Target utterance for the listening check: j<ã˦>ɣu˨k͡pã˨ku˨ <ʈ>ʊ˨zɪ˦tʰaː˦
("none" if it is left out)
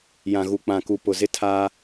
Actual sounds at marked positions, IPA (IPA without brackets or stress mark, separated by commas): ã˨, p